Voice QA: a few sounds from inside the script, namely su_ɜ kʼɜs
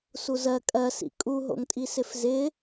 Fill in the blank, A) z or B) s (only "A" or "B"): A